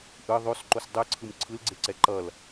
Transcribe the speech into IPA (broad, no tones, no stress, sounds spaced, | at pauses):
ʔ ɯ ðˤ o s ǃ o s dˤ ɯ ǀʰ ɯ m ǀʰ ɯ l ɡ͡ǀ e ǀ ɛ ǃ ʌ l